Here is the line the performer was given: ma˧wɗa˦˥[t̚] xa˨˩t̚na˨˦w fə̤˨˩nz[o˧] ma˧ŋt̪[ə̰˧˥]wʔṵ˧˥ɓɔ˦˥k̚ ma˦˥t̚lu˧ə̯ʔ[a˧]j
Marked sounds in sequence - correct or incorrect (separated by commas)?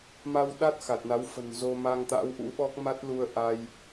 correct, correct, incorrect, correct